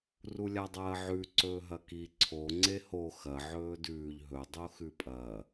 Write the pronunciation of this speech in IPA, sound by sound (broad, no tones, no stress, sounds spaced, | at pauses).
r u lʲ a dˤ ɐː ʕ ʉ ǀ ɵː ɦ ɐ k i ǀʰ o ŋ͡ǀ e h o x ɐ ʕ ɵː d ʉː ʎ ɦ ɵ dˤ o x ʉ pʼ ɐ